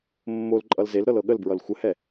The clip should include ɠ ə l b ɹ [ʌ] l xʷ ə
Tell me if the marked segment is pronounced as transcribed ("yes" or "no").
yes